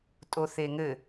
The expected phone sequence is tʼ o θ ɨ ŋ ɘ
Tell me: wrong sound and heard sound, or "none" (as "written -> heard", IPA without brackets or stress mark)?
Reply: ɨ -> e